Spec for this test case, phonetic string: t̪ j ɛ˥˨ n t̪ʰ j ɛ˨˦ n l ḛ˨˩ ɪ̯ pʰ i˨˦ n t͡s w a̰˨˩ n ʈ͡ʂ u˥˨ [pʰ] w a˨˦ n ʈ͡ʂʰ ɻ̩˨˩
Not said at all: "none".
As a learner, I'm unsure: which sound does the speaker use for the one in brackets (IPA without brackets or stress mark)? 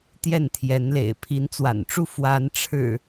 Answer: f